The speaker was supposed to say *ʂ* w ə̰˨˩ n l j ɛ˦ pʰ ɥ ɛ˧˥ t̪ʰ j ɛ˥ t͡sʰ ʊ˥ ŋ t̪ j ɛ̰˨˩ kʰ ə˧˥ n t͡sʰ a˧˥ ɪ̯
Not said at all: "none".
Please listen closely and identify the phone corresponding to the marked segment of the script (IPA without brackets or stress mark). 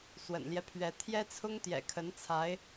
s